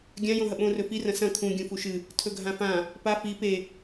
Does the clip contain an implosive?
yes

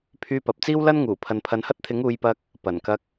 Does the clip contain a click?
no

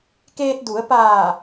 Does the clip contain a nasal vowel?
no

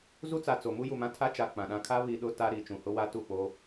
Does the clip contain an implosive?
yes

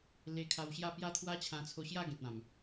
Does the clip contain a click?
no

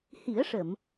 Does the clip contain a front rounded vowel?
no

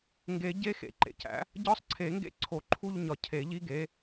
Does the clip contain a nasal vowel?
no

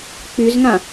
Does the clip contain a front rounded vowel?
yes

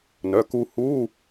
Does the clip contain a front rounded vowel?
yes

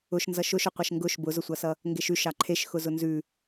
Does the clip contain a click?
yes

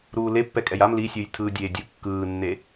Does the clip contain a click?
no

